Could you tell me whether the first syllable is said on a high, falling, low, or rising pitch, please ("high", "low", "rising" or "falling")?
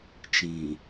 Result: low